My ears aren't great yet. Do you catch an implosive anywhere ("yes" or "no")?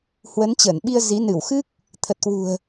yes